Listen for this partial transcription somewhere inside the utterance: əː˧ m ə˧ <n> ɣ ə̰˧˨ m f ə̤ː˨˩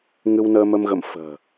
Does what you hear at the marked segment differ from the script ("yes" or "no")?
yes